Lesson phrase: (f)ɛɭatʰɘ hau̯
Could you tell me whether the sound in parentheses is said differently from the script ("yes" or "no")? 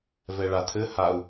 yes